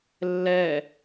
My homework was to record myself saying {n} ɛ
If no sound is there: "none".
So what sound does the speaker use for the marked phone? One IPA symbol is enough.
lː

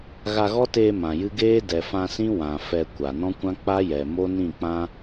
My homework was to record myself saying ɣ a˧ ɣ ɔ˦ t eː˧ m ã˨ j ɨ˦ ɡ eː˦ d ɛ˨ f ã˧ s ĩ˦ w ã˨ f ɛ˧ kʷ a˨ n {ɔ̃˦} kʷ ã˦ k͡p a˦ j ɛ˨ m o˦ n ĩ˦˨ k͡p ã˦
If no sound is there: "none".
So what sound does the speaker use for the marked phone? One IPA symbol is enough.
ɔ̃˦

